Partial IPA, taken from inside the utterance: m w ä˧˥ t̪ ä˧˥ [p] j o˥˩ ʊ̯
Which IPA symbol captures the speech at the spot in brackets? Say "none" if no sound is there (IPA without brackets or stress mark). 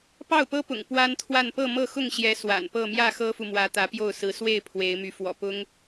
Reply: p